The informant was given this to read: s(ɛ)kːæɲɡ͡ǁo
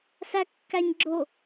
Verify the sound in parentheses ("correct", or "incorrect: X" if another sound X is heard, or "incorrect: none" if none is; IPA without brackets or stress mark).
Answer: incorrect: æ